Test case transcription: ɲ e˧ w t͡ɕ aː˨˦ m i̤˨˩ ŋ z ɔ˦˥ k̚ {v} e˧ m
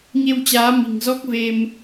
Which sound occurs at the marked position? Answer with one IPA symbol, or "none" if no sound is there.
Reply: v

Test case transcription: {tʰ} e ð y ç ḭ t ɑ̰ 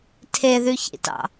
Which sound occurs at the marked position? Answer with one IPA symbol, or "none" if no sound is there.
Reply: tʰ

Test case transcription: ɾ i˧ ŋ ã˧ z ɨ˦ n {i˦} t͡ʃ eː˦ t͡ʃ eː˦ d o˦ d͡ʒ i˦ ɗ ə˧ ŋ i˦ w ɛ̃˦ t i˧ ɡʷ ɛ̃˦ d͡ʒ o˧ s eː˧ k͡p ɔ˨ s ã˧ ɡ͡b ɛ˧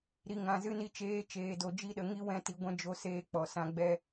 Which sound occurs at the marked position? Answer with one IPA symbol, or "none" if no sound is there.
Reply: i˦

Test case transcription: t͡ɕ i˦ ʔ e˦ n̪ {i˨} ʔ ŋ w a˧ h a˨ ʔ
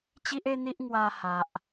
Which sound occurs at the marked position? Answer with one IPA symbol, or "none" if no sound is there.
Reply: i˦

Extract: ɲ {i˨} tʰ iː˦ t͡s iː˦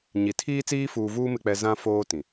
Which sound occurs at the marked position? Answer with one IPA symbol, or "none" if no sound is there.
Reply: i˨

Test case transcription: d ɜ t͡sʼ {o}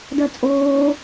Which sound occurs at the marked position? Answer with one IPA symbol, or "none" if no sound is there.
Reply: oː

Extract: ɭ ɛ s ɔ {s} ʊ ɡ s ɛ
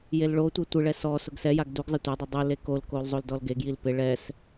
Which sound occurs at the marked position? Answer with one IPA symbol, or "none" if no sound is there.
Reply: s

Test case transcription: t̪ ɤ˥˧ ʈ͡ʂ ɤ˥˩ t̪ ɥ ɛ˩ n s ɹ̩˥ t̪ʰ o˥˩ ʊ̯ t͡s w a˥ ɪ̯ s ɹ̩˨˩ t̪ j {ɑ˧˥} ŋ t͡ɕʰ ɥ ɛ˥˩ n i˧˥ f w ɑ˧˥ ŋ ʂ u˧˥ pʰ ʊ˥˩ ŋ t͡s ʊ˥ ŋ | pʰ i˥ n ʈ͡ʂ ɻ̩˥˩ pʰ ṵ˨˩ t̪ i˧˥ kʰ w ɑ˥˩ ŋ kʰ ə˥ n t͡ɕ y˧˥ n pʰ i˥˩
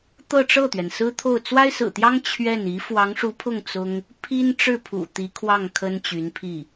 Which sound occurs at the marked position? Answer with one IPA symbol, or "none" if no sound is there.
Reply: ɑ˥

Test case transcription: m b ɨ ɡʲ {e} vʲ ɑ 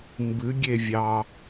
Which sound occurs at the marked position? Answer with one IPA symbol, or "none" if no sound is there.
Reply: e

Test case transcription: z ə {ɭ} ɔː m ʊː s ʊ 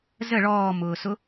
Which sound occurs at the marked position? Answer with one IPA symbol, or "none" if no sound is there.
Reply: ɭ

